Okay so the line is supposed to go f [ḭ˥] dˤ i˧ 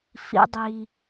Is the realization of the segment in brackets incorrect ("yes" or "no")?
no